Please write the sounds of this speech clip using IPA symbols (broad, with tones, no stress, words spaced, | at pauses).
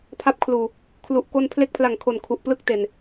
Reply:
pʰa˦˥p̚kʰluː˨˩ | kʰlu˨˩ʔ ko˧npʰle˦˥k̚pʰla˨˩ŋkʰo˨˩n kʰu˨˩ʔplɯ˥˩k̚te˨˩n